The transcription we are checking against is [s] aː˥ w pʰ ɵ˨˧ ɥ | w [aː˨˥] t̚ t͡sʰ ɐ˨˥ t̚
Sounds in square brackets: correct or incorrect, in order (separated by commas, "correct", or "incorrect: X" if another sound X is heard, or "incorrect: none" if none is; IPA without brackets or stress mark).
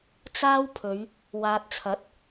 incorrect: t͡s, incorrect: aː˨